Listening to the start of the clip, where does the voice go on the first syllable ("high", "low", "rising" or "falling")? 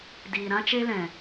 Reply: low